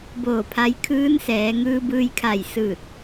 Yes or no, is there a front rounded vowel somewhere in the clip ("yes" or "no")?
no